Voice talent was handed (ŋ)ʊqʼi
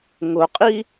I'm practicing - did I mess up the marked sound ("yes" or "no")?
no